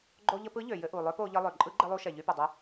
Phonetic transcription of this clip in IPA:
ɡ͡ǃo˧ʎə˧pɯ˧˥ ʎø˩ jɘ˧ʔu˩ lˠø˧˥po˧ʎɘ˧ lˠø˩ǃʼɯ˧˥ɡ͡ǃɘ˧ lˠu˧ʃɛ˩ ʎy˧pɘ˩dˤə˧

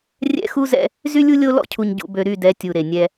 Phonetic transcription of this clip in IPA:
rʲɛ̰˦xu˦zɛ̰˦ | zy˦lʲu˦lʲo˦ lɔ̰˦cʰu˨ɲ ɟṵ˨bø˨ɾy˦˨dɛ˨˦ tʲu˨ɾe˨ nʲɛ˦

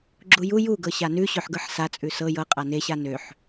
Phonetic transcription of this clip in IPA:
ɡ͡ǁuju juɡɤ ɕanʉɕøħɡɤħ sat͡sʼʉ sɤ jɤ qʼaneɕa nøħ

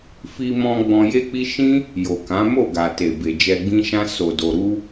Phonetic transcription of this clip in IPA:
fi˧mɔ̃˧ ɡ͡bɔ̃˧je˦k͡pi˦ ʃĩ˦ | jo˨kã˨˦mo˦˨ ɡa˨te˨ be˨d͡ʒɛ˧ɡ͡bĩ˦ʃã˦ so˧do˧ ɾu˦

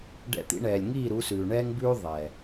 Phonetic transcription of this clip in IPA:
ɖɛ̰˧t̪ḭ˧ɳɛː˨lʲ ŋiː˦˨ ɾu˨˦sʉː˨ɳɛː˦ŋbʉː˦ ðˤɛː˨

